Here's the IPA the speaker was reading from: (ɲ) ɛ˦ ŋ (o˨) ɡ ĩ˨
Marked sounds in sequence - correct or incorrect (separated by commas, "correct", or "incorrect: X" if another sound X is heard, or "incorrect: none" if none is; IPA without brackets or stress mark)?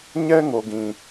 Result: correct, correct